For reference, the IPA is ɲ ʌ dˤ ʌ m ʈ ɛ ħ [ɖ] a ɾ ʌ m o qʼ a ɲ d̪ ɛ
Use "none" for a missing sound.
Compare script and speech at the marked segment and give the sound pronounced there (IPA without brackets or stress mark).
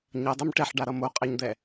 ɖ